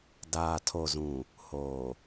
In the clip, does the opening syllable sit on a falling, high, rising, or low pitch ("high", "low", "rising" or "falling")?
low